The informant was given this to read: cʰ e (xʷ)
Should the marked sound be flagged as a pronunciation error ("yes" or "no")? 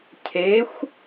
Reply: no